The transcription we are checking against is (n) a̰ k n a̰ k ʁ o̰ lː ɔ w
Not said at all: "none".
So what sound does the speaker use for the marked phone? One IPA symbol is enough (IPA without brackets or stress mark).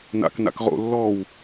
n